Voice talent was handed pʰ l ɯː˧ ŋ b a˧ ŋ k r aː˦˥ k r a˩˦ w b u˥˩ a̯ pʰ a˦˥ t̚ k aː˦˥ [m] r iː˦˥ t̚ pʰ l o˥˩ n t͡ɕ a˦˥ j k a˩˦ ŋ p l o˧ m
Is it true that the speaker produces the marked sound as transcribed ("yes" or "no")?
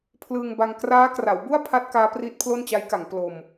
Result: no